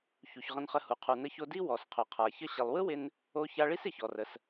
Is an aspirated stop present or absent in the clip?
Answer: present